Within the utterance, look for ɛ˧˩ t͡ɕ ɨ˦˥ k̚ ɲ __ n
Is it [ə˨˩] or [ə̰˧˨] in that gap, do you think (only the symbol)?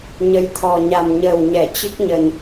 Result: ə˨˩